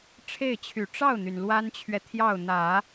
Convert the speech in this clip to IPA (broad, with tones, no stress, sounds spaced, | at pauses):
ʈ͡ʂʰ e˥˩ ɪ̯ t͡ɕʰ y˨˩ ʈ͡ʂ ɑ˥˩ ʊ̯ n̪ y˩ n l w a˥ n t͡ɕʰ ɥ ɛ˨ t̪ʰ j ɑ˥˩ ʊ̯ n̪ ä˨˩˦